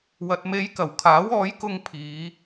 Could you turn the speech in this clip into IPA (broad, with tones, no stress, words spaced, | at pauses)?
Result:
wɐ˨t̚me˨˧jkɐ˨˩w kʰaː˨˥wɔː˨˥jkʊ˧ŋ pʰiː˨˧